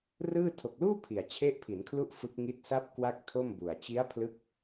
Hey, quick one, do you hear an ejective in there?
no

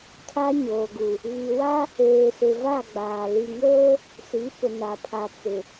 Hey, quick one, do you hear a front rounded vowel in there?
no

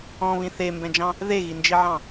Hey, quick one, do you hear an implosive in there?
no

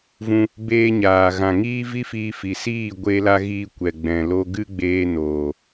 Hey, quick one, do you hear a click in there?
no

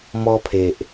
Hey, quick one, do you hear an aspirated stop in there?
yes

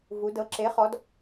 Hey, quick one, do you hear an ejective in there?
no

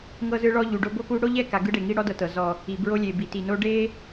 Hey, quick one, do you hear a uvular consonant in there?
no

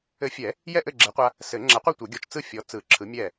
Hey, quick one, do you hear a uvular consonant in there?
yes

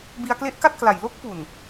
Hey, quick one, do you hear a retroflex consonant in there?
no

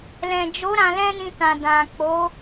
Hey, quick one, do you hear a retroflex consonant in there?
no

